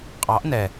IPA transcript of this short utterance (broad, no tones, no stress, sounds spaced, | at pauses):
qʼ ɑ ʔ n ɛ